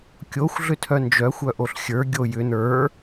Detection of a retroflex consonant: absent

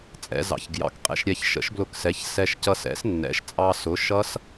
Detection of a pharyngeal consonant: absent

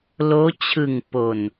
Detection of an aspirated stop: present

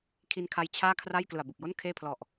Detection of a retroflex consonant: absent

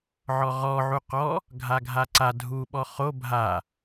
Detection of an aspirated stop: absent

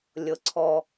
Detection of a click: present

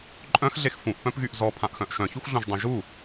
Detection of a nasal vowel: present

